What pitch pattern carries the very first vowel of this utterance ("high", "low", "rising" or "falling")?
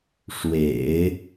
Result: low